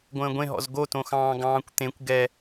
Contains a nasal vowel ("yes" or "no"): yes